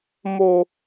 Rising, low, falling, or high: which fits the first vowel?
low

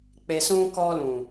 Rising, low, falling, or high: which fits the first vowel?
low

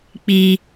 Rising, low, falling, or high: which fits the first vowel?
high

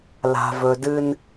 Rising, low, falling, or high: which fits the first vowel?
low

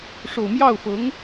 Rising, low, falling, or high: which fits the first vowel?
low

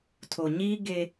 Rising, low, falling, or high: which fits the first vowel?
low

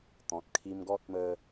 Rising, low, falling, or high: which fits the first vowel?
low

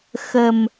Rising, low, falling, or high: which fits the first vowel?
low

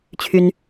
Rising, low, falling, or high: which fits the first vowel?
high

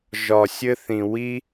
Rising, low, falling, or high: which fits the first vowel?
low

